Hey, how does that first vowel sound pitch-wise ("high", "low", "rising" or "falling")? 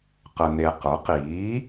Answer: low